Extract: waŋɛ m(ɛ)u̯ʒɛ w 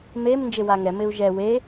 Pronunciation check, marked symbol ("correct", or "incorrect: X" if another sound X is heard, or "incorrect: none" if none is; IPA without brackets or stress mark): incorrect: ɪ